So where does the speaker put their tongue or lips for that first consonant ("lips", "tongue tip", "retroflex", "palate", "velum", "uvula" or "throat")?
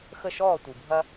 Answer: velum